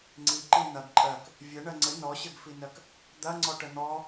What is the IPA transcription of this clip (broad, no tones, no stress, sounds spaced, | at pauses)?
ŋ͡ǀ i ǃ i n̪ ɐ ɡ ǃʼ ɜ k | vʲ ɘ ɳ ɜ ŋ͡ǀ ɘ n ɔ ɕ ɘ ɡ f i n ɜ k | d̪ ɐ ŋ͡ǀ ɔ ʈ ə n̪ ɔ